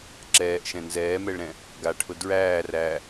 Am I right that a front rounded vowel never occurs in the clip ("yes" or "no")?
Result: yes